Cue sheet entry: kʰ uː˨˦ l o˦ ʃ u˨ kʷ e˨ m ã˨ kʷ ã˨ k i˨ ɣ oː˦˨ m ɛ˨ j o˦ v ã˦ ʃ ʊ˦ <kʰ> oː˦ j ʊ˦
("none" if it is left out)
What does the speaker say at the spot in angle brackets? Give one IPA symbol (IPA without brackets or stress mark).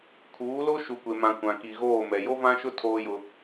tʰ